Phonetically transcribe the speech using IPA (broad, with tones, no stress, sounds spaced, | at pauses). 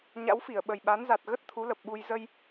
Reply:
ɲ a̰˧˥ w f i˧˩ ə̯ ɓ ə˨˩ j ɓ a˨˦ n z a˨˩ t̚ ɣ ə˦˥ t̚ t̪ʰ u˨˦ l ə˨˩ p̚ ɓ u˧ j z ə˧ j